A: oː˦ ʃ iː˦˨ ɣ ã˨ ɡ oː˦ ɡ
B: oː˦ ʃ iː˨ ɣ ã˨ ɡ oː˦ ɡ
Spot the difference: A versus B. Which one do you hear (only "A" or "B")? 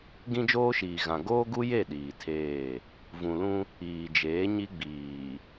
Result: B